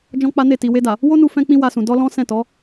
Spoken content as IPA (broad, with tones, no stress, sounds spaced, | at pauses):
d͡ʒ ɔ̃˦ k͡p a˦ n e˦˨ t i˨ w e˧ d a˨ | w o˦ n u˧ f ɛ̃˧ k͡p ĩ˧ w a˧ s ũ˨ d ɔ˧ l ɔ̃˦ s ɛ̃˦˨ t ɔ˨˦